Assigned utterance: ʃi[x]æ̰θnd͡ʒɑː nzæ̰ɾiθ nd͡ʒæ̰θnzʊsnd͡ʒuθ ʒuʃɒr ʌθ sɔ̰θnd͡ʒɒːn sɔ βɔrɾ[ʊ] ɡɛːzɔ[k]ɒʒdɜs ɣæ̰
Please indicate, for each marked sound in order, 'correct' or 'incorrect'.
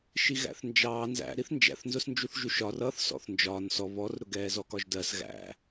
incorrect: ɣ, correct, correct

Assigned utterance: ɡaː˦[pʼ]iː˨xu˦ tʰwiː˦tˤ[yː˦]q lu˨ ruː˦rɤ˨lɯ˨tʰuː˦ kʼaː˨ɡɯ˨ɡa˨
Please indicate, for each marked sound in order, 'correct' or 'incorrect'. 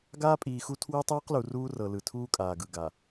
correct, incorrect: iː˦

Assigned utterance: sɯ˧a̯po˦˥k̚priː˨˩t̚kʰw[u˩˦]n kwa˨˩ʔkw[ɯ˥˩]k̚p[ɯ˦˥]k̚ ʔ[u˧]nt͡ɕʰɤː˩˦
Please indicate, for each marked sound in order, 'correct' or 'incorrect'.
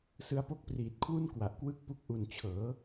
incorrect: u˥˩, correct, incorrect: u˦˥, incorrect: u˨˩

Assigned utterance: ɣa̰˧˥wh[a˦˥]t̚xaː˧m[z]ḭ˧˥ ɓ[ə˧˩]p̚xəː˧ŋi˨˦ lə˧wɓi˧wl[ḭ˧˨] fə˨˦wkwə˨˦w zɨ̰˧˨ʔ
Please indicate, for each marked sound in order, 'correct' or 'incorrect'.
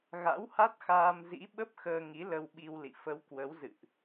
correct, correct, incorrect: ə˦˥, correct

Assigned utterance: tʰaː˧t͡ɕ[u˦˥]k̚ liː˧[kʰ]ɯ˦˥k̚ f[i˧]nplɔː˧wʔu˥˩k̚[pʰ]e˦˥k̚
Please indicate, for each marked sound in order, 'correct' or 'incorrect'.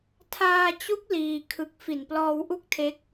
correct, correct, incorrect: i˨˩, incorrect: tʰ

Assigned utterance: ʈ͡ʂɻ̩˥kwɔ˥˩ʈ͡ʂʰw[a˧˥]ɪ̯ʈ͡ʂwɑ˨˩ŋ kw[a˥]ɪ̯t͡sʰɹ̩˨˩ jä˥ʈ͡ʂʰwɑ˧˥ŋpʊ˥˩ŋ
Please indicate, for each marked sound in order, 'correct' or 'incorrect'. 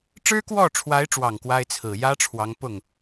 correct, correct

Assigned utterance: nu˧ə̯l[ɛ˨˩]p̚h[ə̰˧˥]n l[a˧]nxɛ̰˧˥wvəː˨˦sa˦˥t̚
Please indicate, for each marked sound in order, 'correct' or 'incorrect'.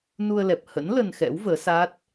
correct, correct, incorrect: ə˧

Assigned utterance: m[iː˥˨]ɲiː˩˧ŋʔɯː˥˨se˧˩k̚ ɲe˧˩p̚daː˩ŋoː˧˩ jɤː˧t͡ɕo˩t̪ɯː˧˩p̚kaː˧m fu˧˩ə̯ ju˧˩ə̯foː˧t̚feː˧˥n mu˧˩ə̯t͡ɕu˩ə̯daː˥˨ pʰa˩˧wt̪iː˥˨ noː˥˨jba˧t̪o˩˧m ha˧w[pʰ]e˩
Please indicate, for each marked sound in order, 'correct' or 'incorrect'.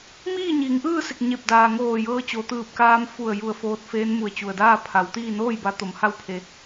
correct, correct

